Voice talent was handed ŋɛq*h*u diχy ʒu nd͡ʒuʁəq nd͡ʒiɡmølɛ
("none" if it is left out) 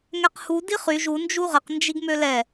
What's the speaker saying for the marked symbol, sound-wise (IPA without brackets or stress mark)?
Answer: h